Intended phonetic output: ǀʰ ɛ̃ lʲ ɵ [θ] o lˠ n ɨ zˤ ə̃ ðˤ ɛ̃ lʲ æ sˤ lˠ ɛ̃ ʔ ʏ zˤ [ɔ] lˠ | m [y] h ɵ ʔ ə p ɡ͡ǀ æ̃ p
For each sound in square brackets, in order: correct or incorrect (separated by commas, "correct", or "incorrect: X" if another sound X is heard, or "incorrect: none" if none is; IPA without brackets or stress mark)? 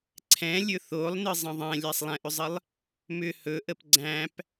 correct, incorrect: ə, incorrect: ʏ